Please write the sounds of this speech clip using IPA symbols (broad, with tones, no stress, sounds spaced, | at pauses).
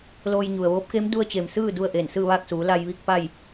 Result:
l oː˧ j ɲ u˩ ə̯ ʋ oː˧˥ p̚ k e˧˥ m d u˧ ə̯ t͡ɕ e˩ m s ɯː˥˨ d u˥˨ ə̯ ʔ e˧˩ n s ɯː˥˨ ʋ aː˥˨ k̚ s uː˩˧ l a˧ j ʋ i˥˨ k̚ p a˥˨ j